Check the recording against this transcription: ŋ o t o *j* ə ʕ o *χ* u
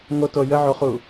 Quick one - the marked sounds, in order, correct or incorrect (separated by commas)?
correct, correct